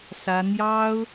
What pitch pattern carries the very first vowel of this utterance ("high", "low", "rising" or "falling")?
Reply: high